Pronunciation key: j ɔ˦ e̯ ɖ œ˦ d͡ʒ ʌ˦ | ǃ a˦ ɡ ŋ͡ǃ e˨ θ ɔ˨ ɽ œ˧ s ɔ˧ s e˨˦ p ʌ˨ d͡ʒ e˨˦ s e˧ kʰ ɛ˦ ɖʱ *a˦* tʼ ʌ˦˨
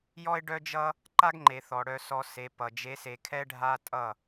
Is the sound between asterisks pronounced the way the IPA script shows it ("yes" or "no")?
yes